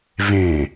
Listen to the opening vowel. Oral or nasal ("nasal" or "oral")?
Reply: nasal